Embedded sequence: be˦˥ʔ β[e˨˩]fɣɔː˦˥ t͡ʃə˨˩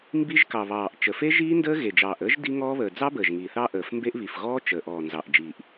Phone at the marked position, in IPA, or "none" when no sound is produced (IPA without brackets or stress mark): i˨˩